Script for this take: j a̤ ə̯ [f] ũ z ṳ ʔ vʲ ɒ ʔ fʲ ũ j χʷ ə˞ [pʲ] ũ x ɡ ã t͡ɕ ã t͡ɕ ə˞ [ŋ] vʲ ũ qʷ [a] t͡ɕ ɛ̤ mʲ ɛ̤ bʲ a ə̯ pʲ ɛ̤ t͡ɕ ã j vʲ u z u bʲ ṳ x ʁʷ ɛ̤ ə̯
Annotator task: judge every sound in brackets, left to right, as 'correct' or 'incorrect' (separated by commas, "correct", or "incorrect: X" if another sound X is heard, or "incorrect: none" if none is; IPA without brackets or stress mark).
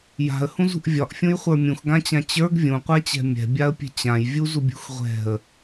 incorrect: h, incorrect: mʲ, incorrect: ɡ, correct